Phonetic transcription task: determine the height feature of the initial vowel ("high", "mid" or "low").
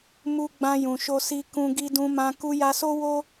high